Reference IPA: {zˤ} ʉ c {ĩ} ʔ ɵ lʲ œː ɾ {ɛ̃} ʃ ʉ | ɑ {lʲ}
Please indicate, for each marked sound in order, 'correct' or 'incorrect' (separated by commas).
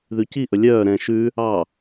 incorrect, incorrect, correct, incorrect